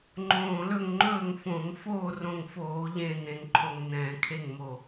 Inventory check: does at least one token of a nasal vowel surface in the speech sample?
yes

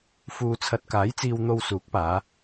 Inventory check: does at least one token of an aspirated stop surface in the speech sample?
yes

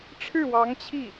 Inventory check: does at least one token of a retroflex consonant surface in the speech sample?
yes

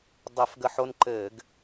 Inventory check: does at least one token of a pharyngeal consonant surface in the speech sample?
yes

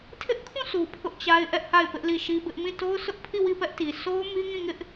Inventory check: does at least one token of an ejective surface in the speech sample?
no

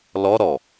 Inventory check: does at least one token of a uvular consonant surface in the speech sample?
no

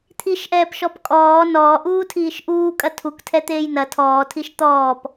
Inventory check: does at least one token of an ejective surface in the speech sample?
yes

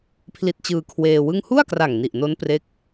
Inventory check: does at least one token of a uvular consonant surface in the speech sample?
no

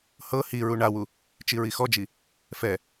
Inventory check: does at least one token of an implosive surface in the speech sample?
no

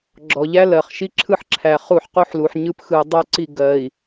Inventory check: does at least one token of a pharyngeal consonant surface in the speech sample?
yes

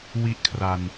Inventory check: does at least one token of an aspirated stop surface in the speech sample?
yes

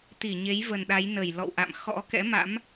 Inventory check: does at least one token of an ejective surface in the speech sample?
no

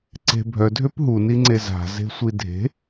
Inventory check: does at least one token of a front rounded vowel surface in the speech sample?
yes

